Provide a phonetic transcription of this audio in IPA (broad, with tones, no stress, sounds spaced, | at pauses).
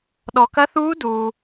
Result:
ɗ ɔ˨ k ɐ˦˥ θ uː˦˥ d uː˨